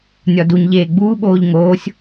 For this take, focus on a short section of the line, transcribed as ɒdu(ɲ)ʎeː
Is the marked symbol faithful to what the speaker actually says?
yes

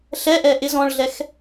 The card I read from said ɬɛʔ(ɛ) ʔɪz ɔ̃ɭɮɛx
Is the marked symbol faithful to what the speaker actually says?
yes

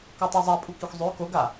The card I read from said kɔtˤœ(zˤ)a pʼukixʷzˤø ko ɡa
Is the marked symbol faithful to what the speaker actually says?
yes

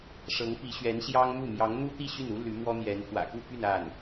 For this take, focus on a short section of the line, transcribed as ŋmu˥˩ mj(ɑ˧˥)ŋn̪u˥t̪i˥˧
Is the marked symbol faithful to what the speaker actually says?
yes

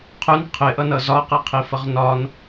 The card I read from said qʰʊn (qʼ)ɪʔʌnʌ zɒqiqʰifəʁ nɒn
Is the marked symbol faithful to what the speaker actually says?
no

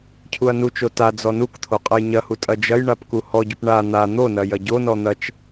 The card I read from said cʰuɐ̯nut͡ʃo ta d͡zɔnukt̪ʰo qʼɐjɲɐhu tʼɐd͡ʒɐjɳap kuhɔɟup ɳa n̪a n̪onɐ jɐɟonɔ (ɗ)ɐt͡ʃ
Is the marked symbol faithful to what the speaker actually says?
no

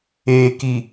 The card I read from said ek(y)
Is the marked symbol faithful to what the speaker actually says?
no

